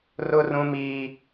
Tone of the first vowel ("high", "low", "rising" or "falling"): high